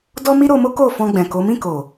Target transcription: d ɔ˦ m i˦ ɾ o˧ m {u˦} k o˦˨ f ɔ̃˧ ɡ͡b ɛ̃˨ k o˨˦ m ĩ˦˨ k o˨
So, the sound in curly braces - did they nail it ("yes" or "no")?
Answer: no